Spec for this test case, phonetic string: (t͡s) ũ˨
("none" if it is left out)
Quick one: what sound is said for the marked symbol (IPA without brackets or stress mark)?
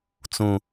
t͡s